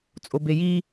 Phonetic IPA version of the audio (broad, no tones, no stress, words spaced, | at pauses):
t͡sʼobeji